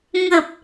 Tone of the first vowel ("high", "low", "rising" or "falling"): low